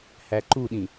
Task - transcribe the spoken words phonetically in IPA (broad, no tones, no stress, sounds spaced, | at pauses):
h æ ǃ u ɗ ĩ